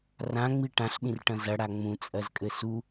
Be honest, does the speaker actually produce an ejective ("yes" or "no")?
yes